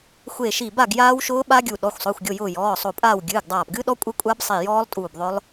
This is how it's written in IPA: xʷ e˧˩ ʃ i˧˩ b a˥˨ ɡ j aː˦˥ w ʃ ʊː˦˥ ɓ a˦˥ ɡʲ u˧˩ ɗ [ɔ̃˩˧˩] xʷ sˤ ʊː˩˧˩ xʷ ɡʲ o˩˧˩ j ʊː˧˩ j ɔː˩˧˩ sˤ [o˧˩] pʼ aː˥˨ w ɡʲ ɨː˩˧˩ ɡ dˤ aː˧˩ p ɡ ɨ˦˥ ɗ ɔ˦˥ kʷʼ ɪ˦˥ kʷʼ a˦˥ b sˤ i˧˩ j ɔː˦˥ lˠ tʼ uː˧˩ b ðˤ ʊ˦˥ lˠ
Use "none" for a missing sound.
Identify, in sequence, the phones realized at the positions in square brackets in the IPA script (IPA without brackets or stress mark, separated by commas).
ɔ˩˧˩, o˧˩